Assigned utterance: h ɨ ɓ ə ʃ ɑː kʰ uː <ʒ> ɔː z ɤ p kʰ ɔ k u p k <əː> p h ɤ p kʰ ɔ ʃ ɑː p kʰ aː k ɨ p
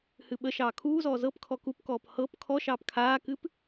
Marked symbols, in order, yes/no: no, no

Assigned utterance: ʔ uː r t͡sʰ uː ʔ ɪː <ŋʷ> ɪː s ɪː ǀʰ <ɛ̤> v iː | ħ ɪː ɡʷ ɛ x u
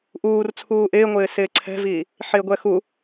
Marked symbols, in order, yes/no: yes, yes

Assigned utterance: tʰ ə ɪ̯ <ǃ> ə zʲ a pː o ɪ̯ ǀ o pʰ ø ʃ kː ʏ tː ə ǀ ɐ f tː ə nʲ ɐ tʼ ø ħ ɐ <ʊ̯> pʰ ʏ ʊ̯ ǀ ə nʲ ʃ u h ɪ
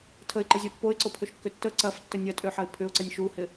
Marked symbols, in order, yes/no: yes, no

